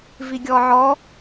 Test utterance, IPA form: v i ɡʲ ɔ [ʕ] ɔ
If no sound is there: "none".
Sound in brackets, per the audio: ʕ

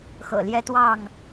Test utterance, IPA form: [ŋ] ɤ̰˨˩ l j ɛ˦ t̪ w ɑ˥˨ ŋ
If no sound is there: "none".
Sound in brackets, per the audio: x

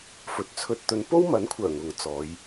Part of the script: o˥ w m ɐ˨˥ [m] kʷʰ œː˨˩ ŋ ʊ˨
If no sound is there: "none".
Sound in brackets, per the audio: n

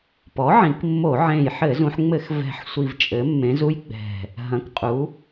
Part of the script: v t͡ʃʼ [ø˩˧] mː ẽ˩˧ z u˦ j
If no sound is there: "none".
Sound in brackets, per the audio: ɘ˩˧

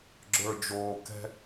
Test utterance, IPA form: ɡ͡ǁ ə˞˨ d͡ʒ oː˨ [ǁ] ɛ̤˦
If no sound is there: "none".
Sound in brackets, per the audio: k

